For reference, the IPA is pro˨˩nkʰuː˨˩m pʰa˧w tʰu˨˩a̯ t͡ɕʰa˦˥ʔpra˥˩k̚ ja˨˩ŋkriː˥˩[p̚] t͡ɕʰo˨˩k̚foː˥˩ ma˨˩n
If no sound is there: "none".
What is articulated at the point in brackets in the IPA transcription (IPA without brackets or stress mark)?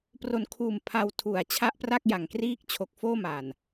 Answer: k̚